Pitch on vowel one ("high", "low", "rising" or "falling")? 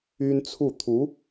high